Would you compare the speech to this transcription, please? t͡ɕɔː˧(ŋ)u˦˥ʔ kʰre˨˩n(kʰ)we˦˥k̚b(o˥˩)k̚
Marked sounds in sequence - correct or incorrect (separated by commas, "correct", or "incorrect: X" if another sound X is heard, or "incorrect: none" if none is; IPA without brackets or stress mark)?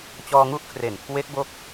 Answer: correct, correct, incorrect: o˦˥